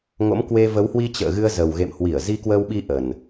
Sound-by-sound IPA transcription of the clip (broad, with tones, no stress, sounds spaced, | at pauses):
ŋ o̰˧˥ m k w e˧ v ə˨˦ w h w i˧ t͡ɕ ə̰ː˧˨ ɣ ɨ˧ ə̯ z ə˨˩ w ɣ ḛ˧˨ m h w i˧˩ ə̯ z i˧ k w əː˧ w ɓ i˧ ʔ ə˨˩ n